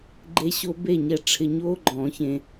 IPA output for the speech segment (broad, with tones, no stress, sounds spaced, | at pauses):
ɡ͡ǃ e˧ ɕ o˧ b e˥˩ ɲ ɛ˧ ʈ͡ʂʰ ɪ˧ ɲ oː˥ ɡ͡ǃ ɔ̃˨˩˦ ç ẽ˧